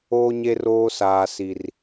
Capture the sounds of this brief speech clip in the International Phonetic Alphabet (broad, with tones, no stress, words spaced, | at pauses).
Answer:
oː˦ɲe˦roː˦ saː˦si˦r